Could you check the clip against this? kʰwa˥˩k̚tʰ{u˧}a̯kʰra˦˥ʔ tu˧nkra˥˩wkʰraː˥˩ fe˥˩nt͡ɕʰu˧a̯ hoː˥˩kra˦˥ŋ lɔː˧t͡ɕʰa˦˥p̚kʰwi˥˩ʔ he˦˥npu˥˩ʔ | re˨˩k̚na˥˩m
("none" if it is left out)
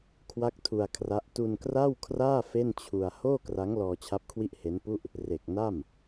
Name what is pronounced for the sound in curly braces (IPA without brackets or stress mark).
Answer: u˧